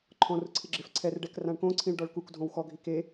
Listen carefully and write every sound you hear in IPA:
ǃʰ ɔ̃ r ʊ ǀʰ ɪ ɡ͡ǁ ɪ f ǀʰ ɛ r ɖ ɛ k r ã ɳ k õ ǀʰ ĩ ɭ ɖ ɔ ɭ k u k dʱ õ w x ɔ ɡʱ i k e

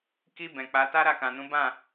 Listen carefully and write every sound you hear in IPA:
k i˧ b ɛ̃˨ k͡p a˨˦ t a˦ ɾ a˦˨ k ã˨ n ũ˨˦ b ã˦˨

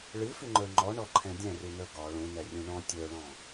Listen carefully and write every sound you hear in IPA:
ɭ ɨ f ʉ ŋ͡ǃ ə˞ ŋ͡ǃ ɔ ɳ ɔ ǃʰ ɛ̃ dʲ ɛ̃ r ʉ n ə˞ ɡ ɒ ɭ ũ n ɛ rʲ ũ ɳ ɔ̃ tʲ ə˞ ɭ ɔ̃

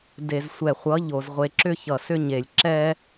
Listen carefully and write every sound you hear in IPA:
d e˨ z sʷ ɛ˨ χʷ ʌ˨˦ ʎ o˨ z ʁʷ e˨ ǁ ʏ˦ ç ʌ˨ s ʏ˦ ɲ e˨ lʲ ǁ ɛ˦

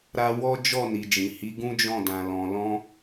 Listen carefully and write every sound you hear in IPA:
ɾ a˧ w ɔ˦ d͡ʒ ɔ˦˨ n i˨ d͡ʒ ĩ˨ h i˨˦ ɡ ũ˦ d͡ʒ ɔ̃˦˨ d ã˨ l ɔ̃˨ l ɔ̃˧

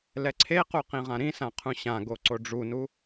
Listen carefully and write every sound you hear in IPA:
l ɛ ǀʰ e q u q ĩ ʁ ã ɾ ĩ s ã qʰ ũ ɕ ã ɡ o ǀ o ɖ͡ʐ u n u

